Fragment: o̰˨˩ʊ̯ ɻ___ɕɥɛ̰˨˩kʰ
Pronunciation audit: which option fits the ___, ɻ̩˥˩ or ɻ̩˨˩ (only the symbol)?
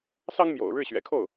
ɻ̩˥˩